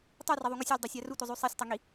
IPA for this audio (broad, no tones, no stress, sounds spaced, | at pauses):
tˤ ʉ r ɐ ðˤ u ŋ ɵ sʲ a lʲ dˤ ɵ sʲ a r u tʷ ɐ zˤ ʉ sˤ e sʲ tˤ ɐ ŋ i